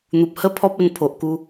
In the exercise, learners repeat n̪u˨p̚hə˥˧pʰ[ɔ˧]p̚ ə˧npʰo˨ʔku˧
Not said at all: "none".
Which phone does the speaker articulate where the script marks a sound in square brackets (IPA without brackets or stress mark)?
ɔ˦